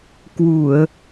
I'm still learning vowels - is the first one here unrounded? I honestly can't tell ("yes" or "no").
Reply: no